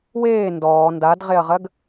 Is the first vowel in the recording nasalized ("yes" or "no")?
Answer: no